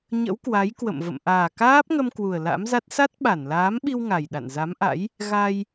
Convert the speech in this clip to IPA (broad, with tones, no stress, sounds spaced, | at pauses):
ɲ ə̰˧˥ w k w a˨˦ j k w ə̰˧˨ m v ə̰˧˨ m ʔ aː˨˩ k aː˦˥ p̚ ŋ ə˧ m k w u˨˩ ə̯ l a̰˧˥ m z a˦˥ t̚ s a˦˥ t̚ ɓ a˧˩ n l aː˨˦ m ɓ i˧ w ŋ a˨˩ j ɗ a̰˧˨ n z a˨˦ m ʔ a̰˧˥ j | ɣ a˧ j